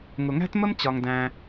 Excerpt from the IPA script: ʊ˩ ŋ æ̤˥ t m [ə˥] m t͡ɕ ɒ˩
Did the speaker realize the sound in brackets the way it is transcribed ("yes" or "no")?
yes